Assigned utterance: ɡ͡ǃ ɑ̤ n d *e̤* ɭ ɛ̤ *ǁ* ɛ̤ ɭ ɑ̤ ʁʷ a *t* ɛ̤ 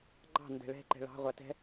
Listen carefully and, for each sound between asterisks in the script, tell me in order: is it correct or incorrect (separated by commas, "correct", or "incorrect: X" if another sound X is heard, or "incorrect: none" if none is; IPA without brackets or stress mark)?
incorrect: ɛ̤, incorrect: ǃ, correct